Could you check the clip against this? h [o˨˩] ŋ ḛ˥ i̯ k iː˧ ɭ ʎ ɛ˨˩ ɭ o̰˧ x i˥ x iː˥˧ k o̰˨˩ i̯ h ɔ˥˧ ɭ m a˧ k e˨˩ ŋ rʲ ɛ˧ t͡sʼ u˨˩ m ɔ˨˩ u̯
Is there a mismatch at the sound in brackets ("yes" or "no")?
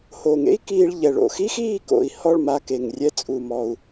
no